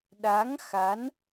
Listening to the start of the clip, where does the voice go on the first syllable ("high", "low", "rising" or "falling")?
rising